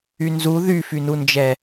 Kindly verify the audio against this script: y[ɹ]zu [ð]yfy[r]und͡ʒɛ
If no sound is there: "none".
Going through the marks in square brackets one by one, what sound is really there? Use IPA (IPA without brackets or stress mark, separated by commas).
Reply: n, ð, n